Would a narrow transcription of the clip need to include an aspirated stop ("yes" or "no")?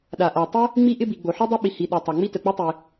no